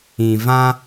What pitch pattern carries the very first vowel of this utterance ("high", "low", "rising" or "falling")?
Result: low